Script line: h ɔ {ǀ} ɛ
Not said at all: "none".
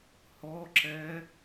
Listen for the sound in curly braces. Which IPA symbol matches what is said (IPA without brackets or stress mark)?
ǁ